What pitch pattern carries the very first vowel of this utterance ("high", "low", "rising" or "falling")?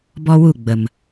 high